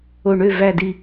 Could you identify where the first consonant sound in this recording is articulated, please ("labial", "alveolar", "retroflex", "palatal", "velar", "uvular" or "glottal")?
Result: retroflex